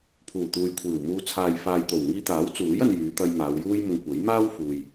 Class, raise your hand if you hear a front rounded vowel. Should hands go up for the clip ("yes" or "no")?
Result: yes